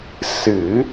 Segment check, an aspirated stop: absent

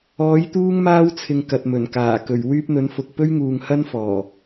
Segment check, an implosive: absent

